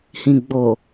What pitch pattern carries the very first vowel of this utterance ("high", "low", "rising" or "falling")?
low